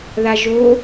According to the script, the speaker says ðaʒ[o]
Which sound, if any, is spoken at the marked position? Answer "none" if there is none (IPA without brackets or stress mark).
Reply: o